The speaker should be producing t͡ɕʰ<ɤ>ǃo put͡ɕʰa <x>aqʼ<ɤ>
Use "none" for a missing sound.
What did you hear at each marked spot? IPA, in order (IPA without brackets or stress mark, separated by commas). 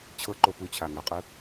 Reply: ɤ, ŋ, ɯ